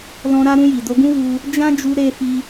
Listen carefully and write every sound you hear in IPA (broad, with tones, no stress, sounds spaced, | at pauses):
l ɔ̃˧ ɾ a˧ ɾ ũ˧ j i˨ d o˧ ɡ ũ˦ w u˧ | d͡ʒ ã˦ d͡ʒ u˧ ɾ e˧ f i˧